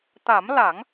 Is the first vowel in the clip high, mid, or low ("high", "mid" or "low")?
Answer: low